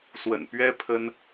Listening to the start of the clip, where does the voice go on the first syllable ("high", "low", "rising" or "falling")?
low